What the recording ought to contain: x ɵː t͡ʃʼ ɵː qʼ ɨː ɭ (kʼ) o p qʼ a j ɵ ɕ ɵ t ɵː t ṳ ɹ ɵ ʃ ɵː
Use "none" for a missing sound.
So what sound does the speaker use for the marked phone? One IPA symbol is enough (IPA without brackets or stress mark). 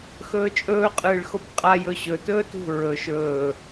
x